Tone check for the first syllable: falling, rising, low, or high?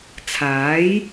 rising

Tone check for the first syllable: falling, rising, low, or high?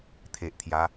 low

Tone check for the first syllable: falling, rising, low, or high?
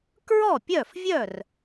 falling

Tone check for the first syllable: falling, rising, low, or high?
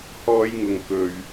high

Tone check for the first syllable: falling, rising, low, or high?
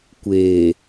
low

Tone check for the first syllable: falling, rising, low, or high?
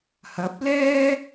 rising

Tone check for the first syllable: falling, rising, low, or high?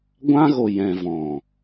high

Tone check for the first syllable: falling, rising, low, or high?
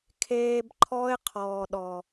low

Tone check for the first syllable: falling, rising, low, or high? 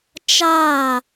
falling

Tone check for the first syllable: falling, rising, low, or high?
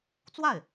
falling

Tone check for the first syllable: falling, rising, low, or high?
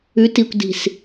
rising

